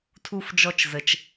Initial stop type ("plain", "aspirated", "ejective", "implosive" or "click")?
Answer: aspirated